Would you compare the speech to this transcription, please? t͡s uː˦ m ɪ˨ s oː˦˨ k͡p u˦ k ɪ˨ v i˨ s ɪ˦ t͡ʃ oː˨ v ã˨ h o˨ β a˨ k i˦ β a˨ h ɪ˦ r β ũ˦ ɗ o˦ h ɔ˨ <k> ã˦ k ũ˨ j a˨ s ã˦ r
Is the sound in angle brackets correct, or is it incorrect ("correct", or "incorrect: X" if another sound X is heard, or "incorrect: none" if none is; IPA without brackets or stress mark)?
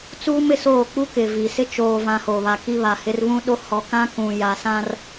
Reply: correct